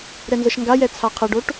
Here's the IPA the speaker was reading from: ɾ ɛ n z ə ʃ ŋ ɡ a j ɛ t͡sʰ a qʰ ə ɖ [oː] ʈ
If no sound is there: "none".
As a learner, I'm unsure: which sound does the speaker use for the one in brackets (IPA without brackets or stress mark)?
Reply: o